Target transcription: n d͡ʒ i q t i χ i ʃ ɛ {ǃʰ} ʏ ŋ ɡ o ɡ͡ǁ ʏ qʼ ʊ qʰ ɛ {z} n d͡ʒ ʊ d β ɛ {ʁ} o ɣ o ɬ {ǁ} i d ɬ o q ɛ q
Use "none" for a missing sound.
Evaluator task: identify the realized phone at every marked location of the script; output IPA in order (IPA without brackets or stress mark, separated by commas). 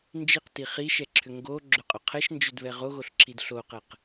ǁʰ, ʃ, ʁ, ǁ